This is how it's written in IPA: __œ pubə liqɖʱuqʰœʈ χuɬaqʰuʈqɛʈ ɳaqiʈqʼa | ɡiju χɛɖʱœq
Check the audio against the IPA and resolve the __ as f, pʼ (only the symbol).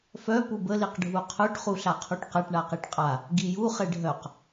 f